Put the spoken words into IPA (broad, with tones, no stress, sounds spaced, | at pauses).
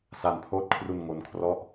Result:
s a˧ n pʰ oː˦˥ t̚ kʰ r u˧ n ŋ o˦˥ n kʰ r ɔ˥˩ ʔ